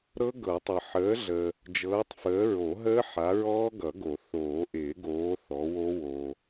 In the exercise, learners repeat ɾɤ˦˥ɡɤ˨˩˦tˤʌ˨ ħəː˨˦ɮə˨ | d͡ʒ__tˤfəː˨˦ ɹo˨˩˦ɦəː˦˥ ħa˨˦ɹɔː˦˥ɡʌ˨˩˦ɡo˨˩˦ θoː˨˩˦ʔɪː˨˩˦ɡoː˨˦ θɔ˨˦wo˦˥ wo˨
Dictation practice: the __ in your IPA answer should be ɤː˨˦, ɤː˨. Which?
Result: ɤː˨˦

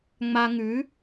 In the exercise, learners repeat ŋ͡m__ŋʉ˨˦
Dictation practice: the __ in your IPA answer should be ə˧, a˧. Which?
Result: a˧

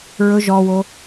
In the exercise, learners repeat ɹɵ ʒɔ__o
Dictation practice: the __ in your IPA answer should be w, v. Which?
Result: w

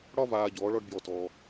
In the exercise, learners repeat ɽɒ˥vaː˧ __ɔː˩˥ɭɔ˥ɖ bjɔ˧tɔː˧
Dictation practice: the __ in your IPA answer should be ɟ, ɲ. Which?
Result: ɟ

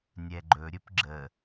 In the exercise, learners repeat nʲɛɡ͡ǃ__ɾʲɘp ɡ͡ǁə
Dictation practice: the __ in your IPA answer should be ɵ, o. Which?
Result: ɵ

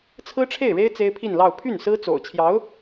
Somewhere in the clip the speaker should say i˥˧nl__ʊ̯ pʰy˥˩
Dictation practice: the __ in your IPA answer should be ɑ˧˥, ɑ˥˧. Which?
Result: ɑ˥˧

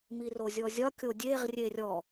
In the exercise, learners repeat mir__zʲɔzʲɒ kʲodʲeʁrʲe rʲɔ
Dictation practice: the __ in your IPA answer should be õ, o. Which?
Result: o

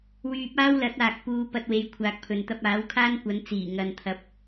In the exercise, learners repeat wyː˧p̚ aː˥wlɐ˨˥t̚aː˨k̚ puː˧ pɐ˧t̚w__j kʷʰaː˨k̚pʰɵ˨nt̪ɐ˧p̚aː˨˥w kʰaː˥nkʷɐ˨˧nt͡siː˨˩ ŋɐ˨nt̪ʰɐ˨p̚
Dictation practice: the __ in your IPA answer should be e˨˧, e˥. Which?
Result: e˨˧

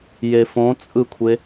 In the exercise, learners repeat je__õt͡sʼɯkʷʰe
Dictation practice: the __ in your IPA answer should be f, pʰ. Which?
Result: f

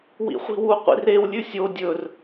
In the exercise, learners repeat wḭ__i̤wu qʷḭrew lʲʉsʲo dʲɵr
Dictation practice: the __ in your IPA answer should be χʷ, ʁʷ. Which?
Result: χʷ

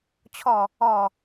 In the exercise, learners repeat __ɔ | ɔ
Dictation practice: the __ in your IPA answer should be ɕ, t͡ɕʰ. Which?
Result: t͡ɕʰ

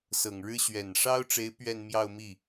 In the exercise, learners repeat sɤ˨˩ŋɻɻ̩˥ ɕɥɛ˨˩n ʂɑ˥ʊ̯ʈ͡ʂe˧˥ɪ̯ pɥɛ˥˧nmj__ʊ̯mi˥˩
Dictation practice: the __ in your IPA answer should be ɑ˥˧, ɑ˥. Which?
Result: ɑ˥˧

